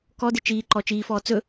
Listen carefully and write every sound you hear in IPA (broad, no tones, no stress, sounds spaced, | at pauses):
k ɔ d ɪ t͡ʃ iː ǃ ɔ t͡ʃ iː f ɔː t͡s ɵ